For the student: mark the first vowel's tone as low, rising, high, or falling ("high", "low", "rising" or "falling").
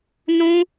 high